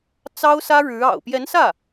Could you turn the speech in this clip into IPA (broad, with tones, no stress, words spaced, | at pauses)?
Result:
t͡sɑ˥ʊ̯sä˥ ɻɻ̩˧˥ɑ̰˨˩ʊ̯ pjɛ˧˥nsä˥˩